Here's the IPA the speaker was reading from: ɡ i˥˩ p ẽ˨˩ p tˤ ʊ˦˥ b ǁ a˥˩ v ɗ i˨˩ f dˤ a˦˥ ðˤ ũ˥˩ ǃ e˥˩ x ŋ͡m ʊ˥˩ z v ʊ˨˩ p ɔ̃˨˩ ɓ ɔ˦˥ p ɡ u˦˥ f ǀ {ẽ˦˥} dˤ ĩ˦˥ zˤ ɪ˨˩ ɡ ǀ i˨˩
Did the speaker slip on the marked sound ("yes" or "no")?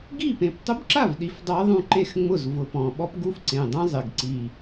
yes